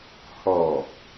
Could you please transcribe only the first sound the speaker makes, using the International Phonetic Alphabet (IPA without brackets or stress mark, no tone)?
h